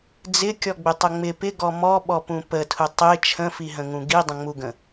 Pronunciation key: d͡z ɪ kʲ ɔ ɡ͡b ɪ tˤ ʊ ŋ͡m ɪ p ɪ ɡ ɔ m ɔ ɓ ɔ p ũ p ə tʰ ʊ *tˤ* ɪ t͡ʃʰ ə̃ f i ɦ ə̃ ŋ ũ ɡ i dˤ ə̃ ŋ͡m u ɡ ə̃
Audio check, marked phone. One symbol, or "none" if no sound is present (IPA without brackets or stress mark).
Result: tˤ